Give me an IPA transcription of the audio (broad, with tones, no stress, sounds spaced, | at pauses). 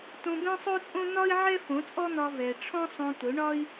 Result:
t õ˧ b ɛ̃˦ sˤ o˦ t͡sʼ õ˦ n̪ ɒ˦ i̯ ʕ ɛ˦ f õ˨˦ t͡sʼ ɔ˦ n̪ ɒ˧ v ɛ˨ ʈ͡ʂʰ ɔ̃˦ sˤ õ˧ t̪ ʊ˨˦ ɳ ɒ˦ i̯